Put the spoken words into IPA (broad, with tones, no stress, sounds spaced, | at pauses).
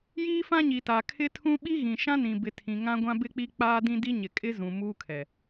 j iː˦ f ã˦ ɲ i˨ t a˨ kʰ ɪ˦ tʰ ũ˦ ɓ i˦ ɣ ĩ˨ ʃ ã˦ n ĩ˨ b ɪ˨ tʰ ĩ˨ ŋ ã˦ ɡʷ ã˦ b ɪ˦ k͡p i˦ k͡p aː˦ d ĩ˦ d i˦ ɲ ɪ˨ kʼ ɪ˦ z ũ˨ m uː˦ kʰ ɛ˨